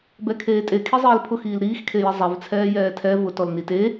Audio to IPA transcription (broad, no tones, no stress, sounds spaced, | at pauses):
b ɛ kʰ eː tʼ e kʰ i zˤ iː l pʰ ʊ x iː l ɾ iː x kʰ e j i zˤ ɛ v t͡sʰ ɛː j ɛː tʰ ɛ v ʊ t ɔ l n i t e